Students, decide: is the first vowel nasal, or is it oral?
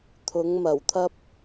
oral